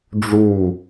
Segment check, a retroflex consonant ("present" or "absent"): present